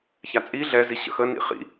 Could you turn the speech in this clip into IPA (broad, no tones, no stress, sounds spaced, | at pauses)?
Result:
ç a t͡sʼ i ɮ ɛ z i ɕ ə̰ x ə n ḭ χ ḭ